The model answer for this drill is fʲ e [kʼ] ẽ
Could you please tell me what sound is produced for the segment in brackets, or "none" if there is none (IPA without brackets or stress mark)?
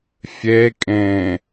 kʼ